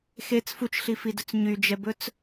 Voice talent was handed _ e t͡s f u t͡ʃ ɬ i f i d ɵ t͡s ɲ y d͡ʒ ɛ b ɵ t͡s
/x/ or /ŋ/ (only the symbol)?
x